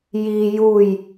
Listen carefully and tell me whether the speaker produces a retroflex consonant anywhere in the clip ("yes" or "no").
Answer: no